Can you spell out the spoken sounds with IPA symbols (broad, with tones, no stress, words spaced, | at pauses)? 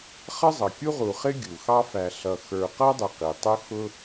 χʌ˥zˤʌ˩ kʲu˥ʁu˨χɪ˥ ɡʲu˩xɑ˦fæ˨ ɬʌ˨ xə˞˨qʌ˥dˤɪ˨ qi˩tˤʊ˥ xʊ˥